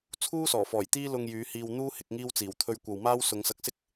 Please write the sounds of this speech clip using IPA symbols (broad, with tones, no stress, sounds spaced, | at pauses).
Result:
t͡sʰ uː˥ s ɔː˨˩ f ɔː˨˩ j t̪ iː˥ l ʊ˧ ŋ j yː˨˧ h iː˧ w n̪ uː˥ h ɪ˨˥ k̚ ŋ iː˥ w t͡s iː˨˩ w t̪ʰ ɵ˧ ɥ kʷ ɐ˨ w m aː˥ w s ʊ˨˧ ŋ s ɐ˧ k̚ s ɪ˥ k̚